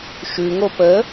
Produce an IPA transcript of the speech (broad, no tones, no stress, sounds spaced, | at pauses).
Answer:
ʃ ʉ ŋ o p ə